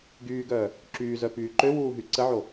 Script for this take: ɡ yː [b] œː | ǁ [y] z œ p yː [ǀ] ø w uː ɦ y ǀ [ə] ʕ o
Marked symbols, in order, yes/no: no, no, no, yes

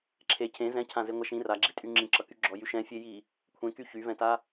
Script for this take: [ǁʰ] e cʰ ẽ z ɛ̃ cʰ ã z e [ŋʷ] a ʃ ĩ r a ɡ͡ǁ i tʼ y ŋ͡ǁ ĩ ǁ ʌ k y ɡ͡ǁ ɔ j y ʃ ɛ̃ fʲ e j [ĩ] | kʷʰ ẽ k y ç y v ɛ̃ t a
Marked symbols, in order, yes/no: yes, yes, no

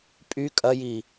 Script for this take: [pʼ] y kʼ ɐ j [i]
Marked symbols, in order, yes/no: yes, yes

